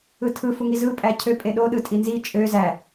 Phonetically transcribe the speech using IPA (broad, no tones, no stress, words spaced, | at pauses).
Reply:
ɯtʰɯ fuŋizɯ pʼæcʰø pʼeɗo ɗɯtʼinzi t͡ʃʼø zæ